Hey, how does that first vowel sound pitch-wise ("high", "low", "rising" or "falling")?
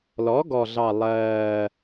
rising